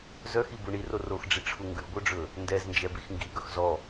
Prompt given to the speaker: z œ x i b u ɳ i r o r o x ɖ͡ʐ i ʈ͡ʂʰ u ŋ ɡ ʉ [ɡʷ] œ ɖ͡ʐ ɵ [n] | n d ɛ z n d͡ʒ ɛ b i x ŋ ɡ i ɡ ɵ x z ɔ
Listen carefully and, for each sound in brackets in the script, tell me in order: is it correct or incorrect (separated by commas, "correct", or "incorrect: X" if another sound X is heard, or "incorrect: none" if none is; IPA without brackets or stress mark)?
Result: correct, incorrect: none